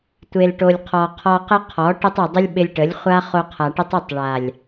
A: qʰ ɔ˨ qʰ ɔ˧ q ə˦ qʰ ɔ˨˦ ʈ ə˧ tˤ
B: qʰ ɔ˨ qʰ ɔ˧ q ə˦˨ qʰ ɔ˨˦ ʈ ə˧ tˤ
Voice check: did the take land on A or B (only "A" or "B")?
A